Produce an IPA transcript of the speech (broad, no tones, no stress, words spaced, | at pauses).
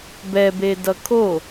bɛbedʌ kʰo